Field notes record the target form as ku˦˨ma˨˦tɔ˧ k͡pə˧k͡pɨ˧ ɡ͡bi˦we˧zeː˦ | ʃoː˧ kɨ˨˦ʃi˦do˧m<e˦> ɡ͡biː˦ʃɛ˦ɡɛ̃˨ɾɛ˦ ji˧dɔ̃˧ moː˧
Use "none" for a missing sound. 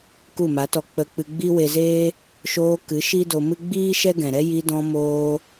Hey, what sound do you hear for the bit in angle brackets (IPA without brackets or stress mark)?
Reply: ɨ˦